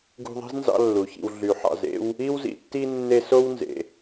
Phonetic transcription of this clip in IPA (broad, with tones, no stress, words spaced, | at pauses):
ɡṳ˦ðˤi̤˥znzɑ̰˦ lːu˩çḭ˨w ɮy˩ħɑ̰˨z ḛ˥w | i˦wzḭ˨tːi˦ nːe˦so˥wnzḛ˨